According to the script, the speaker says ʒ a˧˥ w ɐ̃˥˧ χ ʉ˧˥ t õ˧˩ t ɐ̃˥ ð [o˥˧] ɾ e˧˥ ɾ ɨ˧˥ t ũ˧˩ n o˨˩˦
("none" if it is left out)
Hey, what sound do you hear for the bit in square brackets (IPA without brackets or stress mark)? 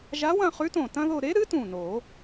o˥˧